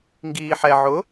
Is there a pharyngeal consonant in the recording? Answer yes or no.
yes